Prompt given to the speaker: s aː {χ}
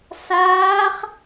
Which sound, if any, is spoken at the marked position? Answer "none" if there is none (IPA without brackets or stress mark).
χ